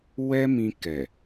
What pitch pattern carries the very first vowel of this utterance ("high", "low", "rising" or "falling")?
high